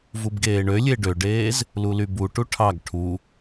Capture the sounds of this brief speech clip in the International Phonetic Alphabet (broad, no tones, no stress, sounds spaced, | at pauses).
v u b ɡ eː ɳ ø lʲ e ɖ ø ɖ eː z | l u l y b u ʈ u ʈʰ ɑ ɡ ʈʰ u